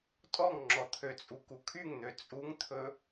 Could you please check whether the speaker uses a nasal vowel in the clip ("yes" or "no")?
no